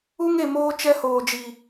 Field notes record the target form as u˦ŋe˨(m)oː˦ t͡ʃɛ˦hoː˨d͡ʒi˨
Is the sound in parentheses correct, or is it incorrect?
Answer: correct